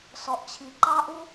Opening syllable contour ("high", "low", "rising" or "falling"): low